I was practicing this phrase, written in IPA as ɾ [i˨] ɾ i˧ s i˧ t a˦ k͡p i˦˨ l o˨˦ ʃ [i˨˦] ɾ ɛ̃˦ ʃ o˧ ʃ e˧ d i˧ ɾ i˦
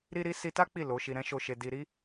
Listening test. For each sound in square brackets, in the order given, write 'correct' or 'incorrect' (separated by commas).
incorrect, incorrect